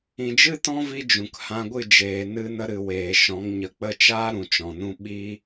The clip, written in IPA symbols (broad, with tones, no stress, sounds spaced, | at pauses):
ĩ˨ d͡ʒ ɨ˦ t ɔ̃˦ v i˦ d͡ʒ ũ˨ k h ã˧ ɡʷ ɨ˦˨ d͡ʒ eː˨ n ɨ˧ n ə˧ ɾ ɨ˨ w eː˨ ʃ ɔ̃˨˦ ŋ ɲ ə˨˦ k͡p ə˦˨ t͡ʃ aː˦ ɾ ũ˨ t͡ʃ ɔ̃˨ n ũ˦ ɓ i˦